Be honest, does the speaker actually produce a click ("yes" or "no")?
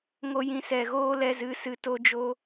no